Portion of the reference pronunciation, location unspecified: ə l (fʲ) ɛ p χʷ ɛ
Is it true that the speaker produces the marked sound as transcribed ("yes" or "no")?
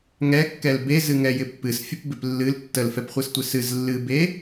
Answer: no